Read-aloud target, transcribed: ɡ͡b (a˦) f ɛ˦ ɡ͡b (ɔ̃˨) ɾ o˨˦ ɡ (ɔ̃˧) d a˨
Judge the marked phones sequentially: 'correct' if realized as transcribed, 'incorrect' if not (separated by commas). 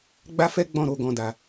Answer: correct, incorrect, correct